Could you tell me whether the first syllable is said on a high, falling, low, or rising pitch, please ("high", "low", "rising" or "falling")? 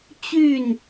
falling